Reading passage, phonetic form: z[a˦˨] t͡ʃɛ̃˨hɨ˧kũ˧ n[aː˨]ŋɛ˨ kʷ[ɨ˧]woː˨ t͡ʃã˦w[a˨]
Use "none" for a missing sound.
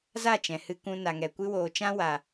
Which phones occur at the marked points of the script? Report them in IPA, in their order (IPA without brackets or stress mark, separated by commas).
a˦˨, a˨, ɨ˧, a˨